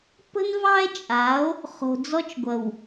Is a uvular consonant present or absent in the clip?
present